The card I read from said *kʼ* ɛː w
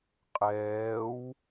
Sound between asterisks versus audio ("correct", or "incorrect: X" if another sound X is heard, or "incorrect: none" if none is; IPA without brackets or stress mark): incorrect: qʼ